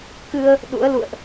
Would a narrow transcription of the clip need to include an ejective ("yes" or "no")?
no